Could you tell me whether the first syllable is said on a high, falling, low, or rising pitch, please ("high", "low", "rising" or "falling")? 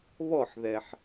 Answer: falling